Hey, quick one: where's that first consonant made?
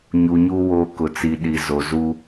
palate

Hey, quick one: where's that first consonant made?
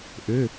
throat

